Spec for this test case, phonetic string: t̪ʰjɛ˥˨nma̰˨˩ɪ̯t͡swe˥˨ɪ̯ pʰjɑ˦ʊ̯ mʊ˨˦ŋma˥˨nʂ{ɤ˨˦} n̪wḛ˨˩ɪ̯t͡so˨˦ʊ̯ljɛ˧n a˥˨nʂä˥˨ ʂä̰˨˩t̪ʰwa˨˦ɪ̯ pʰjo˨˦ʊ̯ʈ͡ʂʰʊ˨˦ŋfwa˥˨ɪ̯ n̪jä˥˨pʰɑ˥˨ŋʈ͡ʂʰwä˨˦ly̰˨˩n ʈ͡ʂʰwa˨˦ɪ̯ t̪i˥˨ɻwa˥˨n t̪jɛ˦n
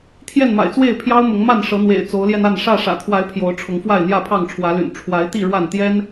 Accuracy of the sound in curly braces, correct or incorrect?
correct